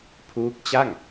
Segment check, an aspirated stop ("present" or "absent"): present